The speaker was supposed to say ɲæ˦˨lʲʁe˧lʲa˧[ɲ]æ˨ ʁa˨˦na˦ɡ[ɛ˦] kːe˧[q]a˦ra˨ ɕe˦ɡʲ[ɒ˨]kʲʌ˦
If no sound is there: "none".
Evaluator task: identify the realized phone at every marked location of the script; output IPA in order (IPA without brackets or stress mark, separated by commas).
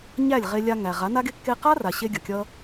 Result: ŋ, e˦, q, ʌ˨